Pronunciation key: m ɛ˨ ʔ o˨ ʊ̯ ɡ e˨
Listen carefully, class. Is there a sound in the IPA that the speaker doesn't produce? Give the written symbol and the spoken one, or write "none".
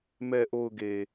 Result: none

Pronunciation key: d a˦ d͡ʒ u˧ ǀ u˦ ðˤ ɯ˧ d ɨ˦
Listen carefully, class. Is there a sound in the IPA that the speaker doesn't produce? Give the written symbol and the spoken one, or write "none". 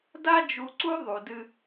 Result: ɯ˧ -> u˧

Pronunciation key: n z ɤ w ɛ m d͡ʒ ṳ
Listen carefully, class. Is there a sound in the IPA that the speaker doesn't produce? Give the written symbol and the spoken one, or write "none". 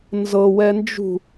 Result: m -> n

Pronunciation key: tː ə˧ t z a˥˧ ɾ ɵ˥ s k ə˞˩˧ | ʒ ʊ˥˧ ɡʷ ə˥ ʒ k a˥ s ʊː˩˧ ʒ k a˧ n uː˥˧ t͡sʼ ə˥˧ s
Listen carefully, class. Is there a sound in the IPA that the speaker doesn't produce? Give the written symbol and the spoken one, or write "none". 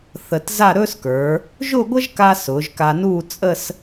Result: tː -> θ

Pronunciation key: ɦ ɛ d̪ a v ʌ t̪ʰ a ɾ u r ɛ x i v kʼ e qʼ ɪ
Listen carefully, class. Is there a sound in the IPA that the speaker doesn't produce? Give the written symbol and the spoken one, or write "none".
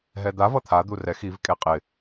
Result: ɾ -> d̪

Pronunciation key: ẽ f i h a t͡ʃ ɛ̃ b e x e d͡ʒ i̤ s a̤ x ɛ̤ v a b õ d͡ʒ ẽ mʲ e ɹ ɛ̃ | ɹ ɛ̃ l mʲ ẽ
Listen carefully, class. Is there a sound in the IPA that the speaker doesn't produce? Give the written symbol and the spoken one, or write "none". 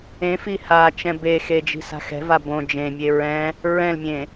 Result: none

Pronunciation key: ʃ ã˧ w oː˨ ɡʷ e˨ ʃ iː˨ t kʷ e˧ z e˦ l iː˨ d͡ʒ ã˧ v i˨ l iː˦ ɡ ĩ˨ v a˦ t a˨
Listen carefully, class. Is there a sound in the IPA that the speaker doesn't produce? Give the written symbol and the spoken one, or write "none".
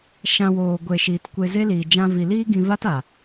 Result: ĩ˨ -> ĩ˧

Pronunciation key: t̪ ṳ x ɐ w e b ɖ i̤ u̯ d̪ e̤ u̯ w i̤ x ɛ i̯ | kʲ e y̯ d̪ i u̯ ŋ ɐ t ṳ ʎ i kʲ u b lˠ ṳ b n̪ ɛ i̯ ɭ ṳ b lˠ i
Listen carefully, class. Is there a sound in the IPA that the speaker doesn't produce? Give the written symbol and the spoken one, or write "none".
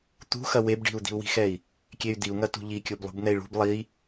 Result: e̤ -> i̤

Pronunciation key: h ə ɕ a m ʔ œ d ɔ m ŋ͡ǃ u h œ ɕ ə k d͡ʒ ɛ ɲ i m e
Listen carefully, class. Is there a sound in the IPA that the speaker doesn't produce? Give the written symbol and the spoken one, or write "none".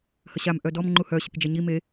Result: none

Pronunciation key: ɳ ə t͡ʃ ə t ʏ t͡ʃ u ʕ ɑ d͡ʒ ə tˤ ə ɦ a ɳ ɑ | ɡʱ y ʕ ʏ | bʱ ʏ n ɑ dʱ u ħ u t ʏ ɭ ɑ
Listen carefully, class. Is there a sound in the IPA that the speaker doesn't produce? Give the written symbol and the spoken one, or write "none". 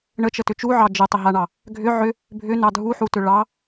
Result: y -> ʏ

